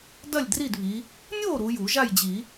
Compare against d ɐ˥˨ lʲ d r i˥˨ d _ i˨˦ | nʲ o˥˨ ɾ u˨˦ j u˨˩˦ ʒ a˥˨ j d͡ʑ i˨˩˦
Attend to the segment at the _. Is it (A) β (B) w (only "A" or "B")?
A